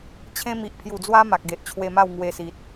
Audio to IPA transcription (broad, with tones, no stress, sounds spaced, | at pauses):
t͡ɕʰ ẽ˦ m i˨ ʔ pʰ j u˨˩ d͡z w a˦ m a˨ k̚ ɡ e˨ ʔ t͡ɕʰ w e˧ m a˥˧ w ŋ w e˧ s i˨ t̚